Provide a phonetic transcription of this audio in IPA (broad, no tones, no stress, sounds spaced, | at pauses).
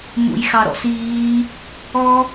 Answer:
m ṵ j x ɑ ɾ ɔ̰ s iː | ɔ